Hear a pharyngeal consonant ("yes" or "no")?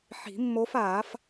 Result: yes